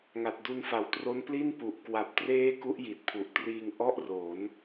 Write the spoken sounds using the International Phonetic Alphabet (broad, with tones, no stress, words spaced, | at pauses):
ŋa˨˩t̚du˧nfa˩˦wtro˦˥n pli˥˩npu˨˩ʔ kwa˨˩p̚treː˦˥ ku˦˥ʔji˨˩t̚pʰu˨˩ʔtriː˧ŋ ʔɔ˥˩ʔro˩˦n